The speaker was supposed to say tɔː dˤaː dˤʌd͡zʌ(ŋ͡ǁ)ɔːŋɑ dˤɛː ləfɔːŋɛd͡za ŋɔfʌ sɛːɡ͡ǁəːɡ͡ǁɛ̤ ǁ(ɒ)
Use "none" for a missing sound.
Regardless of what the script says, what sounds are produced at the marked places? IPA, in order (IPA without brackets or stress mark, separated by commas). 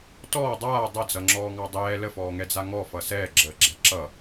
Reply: ŋ͡ǁ, ʌ